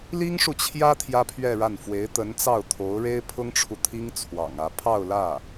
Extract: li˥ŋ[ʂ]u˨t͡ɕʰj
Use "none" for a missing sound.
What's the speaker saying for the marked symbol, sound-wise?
ʂ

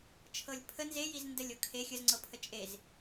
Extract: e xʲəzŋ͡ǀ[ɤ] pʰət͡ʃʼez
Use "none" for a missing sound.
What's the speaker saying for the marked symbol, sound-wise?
ɤ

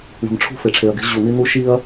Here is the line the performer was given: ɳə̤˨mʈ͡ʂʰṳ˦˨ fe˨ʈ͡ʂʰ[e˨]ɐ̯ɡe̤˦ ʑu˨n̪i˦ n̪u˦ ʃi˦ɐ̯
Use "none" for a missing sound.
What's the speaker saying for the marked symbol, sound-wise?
e˨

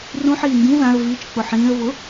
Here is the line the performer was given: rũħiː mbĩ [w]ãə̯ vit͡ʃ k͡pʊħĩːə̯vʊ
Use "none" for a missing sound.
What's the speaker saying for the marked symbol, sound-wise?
ð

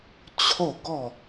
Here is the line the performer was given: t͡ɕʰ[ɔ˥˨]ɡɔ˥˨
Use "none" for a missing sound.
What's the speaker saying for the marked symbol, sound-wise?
o˥˨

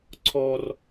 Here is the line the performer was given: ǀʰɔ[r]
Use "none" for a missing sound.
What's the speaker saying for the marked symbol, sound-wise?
r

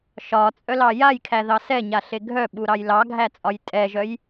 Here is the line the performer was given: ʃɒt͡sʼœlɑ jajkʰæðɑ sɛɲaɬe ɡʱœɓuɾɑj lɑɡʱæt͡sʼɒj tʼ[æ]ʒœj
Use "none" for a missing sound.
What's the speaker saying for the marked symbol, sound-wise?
ɛ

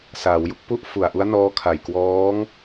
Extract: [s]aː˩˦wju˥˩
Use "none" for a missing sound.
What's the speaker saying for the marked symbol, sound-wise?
s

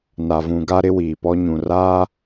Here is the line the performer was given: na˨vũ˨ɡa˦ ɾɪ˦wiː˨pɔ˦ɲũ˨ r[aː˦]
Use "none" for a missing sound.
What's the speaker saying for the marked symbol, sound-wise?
aː˦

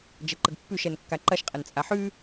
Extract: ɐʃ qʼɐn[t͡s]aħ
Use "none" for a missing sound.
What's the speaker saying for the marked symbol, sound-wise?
t͡sʼ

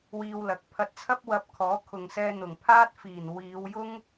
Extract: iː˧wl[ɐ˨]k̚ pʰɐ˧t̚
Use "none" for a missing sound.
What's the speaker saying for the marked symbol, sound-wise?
ɐ˨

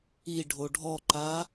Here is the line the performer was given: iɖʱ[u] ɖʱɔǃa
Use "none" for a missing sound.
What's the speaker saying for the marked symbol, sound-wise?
o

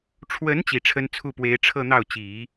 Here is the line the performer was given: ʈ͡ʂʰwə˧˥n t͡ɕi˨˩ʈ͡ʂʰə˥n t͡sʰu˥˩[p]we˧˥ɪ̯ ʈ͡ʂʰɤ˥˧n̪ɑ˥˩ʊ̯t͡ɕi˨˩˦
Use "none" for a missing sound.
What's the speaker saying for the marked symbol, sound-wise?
p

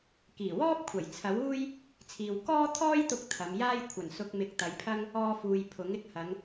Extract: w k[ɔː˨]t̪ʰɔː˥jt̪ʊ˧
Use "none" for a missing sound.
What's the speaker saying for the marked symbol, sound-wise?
ɔː˥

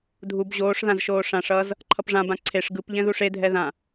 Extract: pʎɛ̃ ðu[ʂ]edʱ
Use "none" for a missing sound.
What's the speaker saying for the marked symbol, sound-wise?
ʂ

